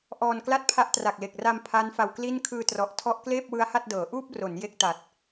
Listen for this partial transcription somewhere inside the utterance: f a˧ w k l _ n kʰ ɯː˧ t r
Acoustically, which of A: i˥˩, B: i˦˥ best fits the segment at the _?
A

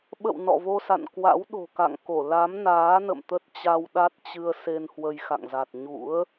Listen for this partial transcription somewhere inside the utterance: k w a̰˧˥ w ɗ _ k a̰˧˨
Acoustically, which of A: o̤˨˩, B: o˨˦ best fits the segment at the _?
A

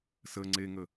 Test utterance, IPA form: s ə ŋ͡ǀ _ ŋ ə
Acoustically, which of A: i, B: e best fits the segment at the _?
B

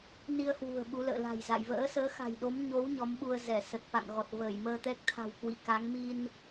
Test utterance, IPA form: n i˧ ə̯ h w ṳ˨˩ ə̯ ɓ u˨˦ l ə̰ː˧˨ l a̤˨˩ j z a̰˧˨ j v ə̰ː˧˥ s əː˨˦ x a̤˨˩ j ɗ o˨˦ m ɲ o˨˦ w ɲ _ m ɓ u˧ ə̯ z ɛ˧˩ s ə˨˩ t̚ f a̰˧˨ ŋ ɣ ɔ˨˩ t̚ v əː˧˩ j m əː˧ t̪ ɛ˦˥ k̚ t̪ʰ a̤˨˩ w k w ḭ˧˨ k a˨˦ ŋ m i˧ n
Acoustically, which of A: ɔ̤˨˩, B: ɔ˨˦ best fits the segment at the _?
B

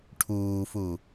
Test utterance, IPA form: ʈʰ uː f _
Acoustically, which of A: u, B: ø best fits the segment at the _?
A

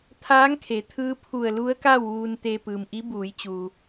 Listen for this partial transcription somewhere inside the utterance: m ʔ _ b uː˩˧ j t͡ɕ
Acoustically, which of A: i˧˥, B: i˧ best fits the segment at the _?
A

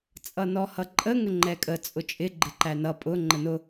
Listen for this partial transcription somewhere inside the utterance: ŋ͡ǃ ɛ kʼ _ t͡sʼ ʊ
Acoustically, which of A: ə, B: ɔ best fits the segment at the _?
A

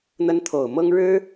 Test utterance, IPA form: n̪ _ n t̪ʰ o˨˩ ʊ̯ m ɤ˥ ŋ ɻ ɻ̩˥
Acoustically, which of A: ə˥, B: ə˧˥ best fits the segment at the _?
A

